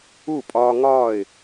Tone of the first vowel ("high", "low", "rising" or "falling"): falling